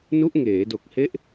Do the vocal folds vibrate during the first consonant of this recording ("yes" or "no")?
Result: yes